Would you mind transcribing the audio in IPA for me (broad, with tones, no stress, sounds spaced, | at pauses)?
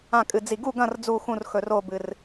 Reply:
ã˦˨ kʼ ɨ˨ d͡z i˨ ɡ u˦˨ ɡ ɐ̃˦˨ r d͡z u˦˨ x ũ˦˨ r x ɵ˨ r o˦˨ b ɨ˨ r